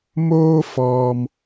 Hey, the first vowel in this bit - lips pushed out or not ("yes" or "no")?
yes